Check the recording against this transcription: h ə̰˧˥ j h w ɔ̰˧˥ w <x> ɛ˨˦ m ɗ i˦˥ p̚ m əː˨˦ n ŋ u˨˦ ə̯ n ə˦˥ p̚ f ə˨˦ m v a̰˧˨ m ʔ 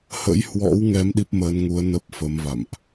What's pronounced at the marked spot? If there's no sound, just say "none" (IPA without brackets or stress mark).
ŋ